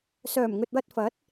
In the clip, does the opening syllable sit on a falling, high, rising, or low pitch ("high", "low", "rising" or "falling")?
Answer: low